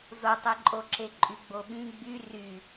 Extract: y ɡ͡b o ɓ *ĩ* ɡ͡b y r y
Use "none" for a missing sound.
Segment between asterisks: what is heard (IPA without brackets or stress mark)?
ĩ